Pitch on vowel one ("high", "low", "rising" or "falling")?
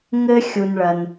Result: high